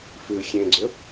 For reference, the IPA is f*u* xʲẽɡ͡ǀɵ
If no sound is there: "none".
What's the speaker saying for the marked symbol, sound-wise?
ʉ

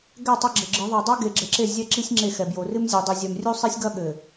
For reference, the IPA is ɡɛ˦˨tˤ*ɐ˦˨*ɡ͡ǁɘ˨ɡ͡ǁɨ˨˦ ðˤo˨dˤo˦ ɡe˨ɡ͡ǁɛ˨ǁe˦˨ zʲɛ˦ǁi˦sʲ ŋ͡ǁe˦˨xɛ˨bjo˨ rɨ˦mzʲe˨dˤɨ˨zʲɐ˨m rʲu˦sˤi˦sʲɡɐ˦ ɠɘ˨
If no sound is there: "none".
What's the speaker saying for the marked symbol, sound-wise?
ɐ˦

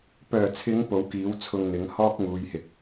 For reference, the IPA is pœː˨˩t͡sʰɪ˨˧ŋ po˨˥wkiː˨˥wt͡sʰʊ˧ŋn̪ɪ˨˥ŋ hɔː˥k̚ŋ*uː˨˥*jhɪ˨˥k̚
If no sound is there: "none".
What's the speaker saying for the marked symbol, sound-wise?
uː˨˧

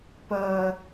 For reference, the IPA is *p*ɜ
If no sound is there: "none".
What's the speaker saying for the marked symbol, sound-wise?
p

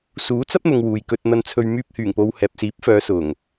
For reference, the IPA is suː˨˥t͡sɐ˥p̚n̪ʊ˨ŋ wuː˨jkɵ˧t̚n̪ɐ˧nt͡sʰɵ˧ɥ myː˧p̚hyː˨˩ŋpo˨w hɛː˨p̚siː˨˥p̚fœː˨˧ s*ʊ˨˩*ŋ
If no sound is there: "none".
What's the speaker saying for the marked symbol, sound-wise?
ʊ˨˩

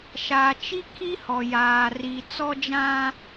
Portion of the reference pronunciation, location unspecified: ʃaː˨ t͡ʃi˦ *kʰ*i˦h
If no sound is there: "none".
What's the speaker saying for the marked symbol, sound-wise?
kʰ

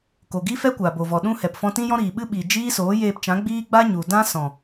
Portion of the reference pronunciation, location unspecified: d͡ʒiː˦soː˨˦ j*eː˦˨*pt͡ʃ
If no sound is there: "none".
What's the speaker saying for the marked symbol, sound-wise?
eː˧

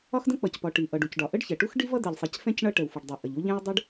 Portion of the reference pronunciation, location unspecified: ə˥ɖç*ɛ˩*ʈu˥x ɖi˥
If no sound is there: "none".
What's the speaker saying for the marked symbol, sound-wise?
ɛ˩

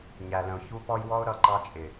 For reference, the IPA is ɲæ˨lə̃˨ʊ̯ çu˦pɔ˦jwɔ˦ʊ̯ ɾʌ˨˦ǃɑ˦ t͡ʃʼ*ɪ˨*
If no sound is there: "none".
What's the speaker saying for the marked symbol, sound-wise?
ɪ˨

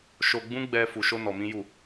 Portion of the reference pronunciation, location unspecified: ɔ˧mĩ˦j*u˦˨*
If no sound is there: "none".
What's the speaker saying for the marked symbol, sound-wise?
u˦˨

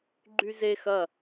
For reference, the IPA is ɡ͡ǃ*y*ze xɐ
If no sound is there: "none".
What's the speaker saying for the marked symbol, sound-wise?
y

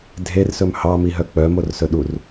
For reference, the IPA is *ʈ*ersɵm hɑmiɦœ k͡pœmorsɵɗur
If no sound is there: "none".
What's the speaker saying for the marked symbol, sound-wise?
dʱ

